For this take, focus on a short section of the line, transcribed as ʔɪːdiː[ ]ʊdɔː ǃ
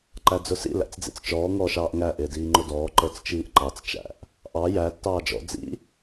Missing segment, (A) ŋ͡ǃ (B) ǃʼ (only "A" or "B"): A